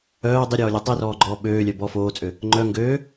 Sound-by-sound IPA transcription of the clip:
œː dˤ i ɾʲ ɔː lʲ ø tˤ i r ɔː ɡ͡ǃ ɔː ɓ øː lʲ œ b ɔ f oː t͡sʼ ø | ŋ͡ǃ œ ŋ ɡ øː

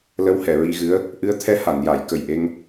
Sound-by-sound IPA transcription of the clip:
l ə˧˥ w h ɛ˨˩˨ ɹ i˧ ɣ ɨ˧˥ ə̯ | ʔ ɨ˧˥ ə̯ t̪ʰ ɛ˧˥ h a˨˩˨ n j a˨˩˨ j k ə˨˩ j ʔ e˧ ŋ

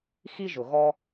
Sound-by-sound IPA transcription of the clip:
x i˦ ʒ ʊ˨ ɣ ɔ˦

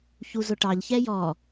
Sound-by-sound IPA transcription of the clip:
ç u z ʊ ʈ ɑ ʎ ç ɛ j ɔ

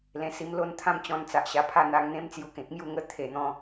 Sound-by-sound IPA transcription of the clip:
l ẽ˧ s i˧ m l o˥˧ n t̪ʰ ã˥˧ m t͡ɕ ɔ̃˧ n t͡s a˨ ʔ ɕ a˧ pʰ a˥˧ n̪ a˧ ŋ n̪ ẽ˦ m t͡s j u˧ k ẽ˨ k̚ m j u˥˧ ŋ ə˥˧ t̪ʰ e˧ n̪ ɔ̃˦

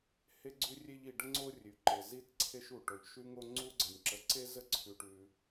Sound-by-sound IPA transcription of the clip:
h e˧ ɡ͡ǀ ʉ˧ rʲ e˧ ʎ i˩ ɖ ə˧ ŋ͡ǀ o˧ rʲ ʉ˩ ǃ e˩ z i˧ t ǀʰ e˧ ʃ u˩ ʈ o˩ ʎ ʃ ʉ˧ ŋ o˧ ŋ͡ǀ u˧ ɡ͡ǀ ə˩ nʲ ǁ ə˩ ǀ e˧ z ə˧ ǀʰ ʉ˩ ʈ ʉ˩

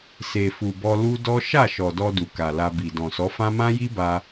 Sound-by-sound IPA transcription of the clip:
s e˨ f u˨ b ɔ˧ l u˦ d ɔ˦ ʃ a˦˨ ʃ ɔ˨ d ɔ˧ d u˨ k a˨ l a˧ b i˨ d ɔ̃˨ s ɔ˨˦ f ã˦ m ã˦ j i˦ b a˧

